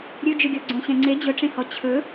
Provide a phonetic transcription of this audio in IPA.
ɾʲ ɵ d͡ʒ ɵ ɡʲ ɔ ɡ͡ǀ õ ɕ ɛ̃ ŋ͡ǀ e d͡ʑ ɵ ʈ͡ʂ ẽ h ɔ t͡ɕʰ ɵ

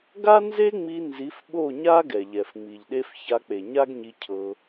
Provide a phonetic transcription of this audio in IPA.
ɡ a˦ n z e˦ ŋ͡m i˧ n z i˨˦ f ɓ o˦˨ ɲ a˦ ɡ ɛ˨ ʎ ɛ˨ f ŋ͡m i˨ ʎ ɗ e˦ f ç a˧ k͡p e˨ ɲ a˦ ɡ ɲ i˧ cʰ ɤ˧

